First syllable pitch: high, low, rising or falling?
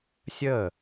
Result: falling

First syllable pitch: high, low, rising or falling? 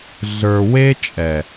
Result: low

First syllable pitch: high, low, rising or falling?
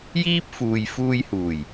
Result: high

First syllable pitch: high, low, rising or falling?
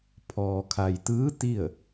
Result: low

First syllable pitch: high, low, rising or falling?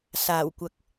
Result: low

